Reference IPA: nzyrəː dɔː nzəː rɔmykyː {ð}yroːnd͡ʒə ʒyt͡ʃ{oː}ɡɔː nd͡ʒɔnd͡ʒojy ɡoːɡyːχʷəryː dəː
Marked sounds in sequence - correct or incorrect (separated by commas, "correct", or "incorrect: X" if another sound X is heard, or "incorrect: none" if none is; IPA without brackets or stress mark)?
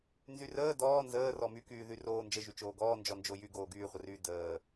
correct, correct